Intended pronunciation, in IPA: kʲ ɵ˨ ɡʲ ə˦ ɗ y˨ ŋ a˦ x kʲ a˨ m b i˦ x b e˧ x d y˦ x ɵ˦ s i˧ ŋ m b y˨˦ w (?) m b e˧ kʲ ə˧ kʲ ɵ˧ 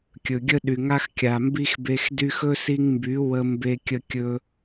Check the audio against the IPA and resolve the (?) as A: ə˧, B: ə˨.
A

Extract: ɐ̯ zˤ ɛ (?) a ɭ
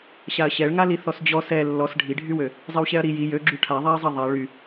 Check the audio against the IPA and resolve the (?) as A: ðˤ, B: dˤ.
A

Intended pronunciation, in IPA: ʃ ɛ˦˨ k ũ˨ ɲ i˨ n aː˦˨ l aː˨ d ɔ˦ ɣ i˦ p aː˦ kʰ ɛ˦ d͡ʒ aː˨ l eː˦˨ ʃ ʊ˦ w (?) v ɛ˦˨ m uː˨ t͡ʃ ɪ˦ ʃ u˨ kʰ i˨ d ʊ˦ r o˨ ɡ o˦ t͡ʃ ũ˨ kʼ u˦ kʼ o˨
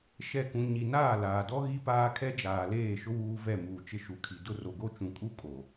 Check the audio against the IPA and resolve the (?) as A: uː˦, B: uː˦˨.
A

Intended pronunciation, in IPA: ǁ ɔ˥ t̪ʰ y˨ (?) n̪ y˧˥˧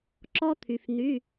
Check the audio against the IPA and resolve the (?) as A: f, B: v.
A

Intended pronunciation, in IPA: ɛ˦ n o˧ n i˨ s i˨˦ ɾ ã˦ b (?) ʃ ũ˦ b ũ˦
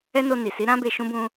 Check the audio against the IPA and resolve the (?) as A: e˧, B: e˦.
A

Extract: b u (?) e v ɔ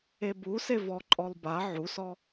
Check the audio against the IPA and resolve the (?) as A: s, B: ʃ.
A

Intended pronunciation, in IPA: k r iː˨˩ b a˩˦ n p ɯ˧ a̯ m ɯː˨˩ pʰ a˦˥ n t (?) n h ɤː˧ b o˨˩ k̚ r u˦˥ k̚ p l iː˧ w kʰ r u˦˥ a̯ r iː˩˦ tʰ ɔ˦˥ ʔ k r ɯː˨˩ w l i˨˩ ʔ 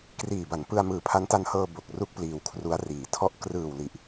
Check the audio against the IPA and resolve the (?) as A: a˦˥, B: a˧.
B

